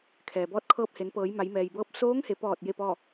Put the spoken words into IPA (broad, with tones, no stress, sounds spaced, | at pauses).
kʰ ɛː˩ b ɔː˧ t̚ kʰ ɤː˧ p̚ h e˩˧ n p ɤː˩˧ j m a˩˧ j m ɛː˩ j b ɤː˧˥ p̚ s oː˧˥ ŋ h e˩˧ p ɔː˧˩ t̚ j e˥˨ p ɔː˥˨